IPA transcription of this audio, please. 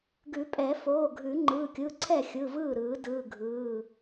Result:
ɡ ʉ˨˩˦ pʼ ɛ˨˩˦ f oː˩˧˩ ɡʱ ʉ˨˩˦ ŋ͡ǃ ɯː˩˧˩ kʲ ɯ˩˧˩ ǀʰ ɛ˥˩ xʲ ɯ˩˧˩ v ɯː˥˩ ɾ ɯː˨˩˦ d ɯː˩˧˩ ɡʱ ɯː˩˧˩

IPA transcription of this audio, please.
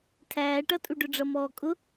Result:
tʰ æː ʈ ʌ tʼ u ɖ ʊ ɖ͡ʐ ʌ m ɔː kʼ ʊ

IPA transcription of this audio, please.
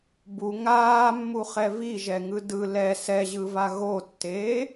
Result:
b u ŋ aː mː u χ ɛ v i ʒ ɛ ŋ ɯ d ɯ l ɛ s ɛ ʑ ɯ v a ɣ o tː eː

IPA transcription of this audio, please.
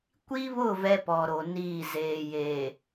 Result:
kʷ i˦ β ʊ˦˨ v ɛ˦ p ɔ˨ ɾ o˨ n iː˦˨ z eː˨ j eː˨

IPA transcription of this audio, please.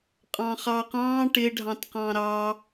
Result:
qʼ ɑ̃ χ ɑ q ɑ̃ ʈ ɪ ɖʱ ɑ̃ t q ɑ̃ ɾ ɑ

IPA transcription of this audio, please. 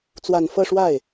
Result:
t͡s w a˨˩ n f ɤ˥˧ ʂ w a˥˩ ɪ̯

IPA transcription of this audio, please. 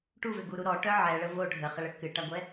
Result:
ʈ u v ʏ ɡ u ɾ u ɾ ɔ ʈ œ ʕ ɛ ɭ ə v o ɖʱ ə χ ə ɭ ə k ɨ ʈ a ɡʷ ɛ

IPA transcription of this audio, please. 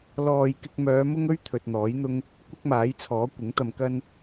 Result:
l ɔː˨ j k ɪ˧ k̚ m œː˨˧ m ʊ˥ ŋ ɵ˥ ɥ t̪ʰ ɵ˧ t̚ n̪ ɔː˨˥ j n̪ ʊ˥ ŋ | kʷ ɪ˥ k̚ m aː˨˥ j t͡sʰ ɔː˨˥ kʷ ɪ˨˥ ŋ t̪ ɐ˧ m k ɐ˥ n

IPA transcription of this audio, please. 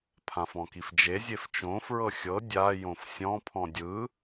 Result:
pʰ ã f ɔ̃ k i f d͡ʒ e zʲ e f t͡ʃ õ f ɹ ɤ xʲ ɤ dʲ a j õ f sʲ ɔ̃ pʰ ɔ̃ dʲ ɯ

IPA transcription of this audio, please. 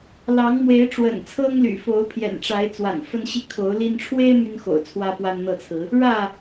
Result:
l ɑ˨˦ ŋ m w e˨˦ ɪ̯ ʈ͡ʂ w ə̰˨˩ n t͡sʰ ɤ˦ ŋ l y̰˨˩ f o˨˦ ʊ̯ pʰ j ɛ̰˨˩ n ʈ͡ʂ a˨˦ ɪ̯ t͡s w a̰˨˩ n f ə˦ n ɕ i˦ kʰ o˨˦ ʊ̯ l i˦ n ʈ͡ʂʰ w e˦ ɪ̯ m y˦ n x o̰˨˩ ʊ̯ t͡sʰ w ä˦ p w a˦ n n̪ ɤ˥˨ t͡sʰ ɹ̩˨˦ | ɻ ä˥˨

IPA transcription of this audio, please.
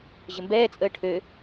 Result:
ʑ ə m b ɛː t͡sʼ əː ʈʰ ø

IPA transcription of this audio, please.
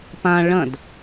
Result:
p ã ɭ ɐ̃ d

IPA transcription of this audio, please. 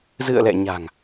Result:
z ɨ̰˧˨ ə̯ l ɛ̰˧˨ ɲ a̤˨˩ ŋ

